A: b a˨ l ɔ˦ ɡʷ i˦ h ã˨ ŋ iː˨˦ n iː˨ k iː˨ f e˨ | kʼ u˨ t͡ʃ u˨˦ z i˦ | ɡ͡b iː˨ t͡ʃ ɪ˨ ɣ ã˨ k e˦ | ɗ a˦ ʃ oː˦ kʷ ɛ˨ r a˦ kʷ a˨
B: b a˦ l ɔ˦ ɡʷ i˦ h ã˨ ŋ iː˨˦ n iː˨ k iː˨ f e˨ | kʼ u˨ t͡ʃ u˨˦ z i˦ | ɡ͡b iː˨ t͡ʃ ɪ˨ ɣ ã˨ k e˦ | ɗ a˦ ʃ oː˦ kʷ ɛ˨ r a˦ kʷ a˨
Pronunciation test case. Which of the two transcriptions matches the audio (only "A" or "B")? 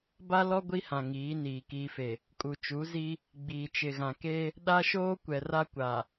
B